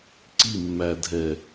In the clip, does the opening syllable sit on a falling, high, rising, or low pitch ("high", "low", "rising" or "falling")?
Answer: falling